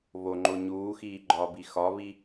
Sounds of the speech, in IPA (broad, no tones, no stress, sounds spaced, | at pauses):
β o ŋ͡ǃ o ɲ uː x iː ɡ͡ǃ ɒː b i x ɒ β i